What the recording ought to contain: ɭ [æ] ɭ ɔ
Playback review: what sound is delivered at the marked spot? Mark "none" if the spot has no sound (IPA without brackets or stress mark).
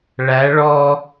æ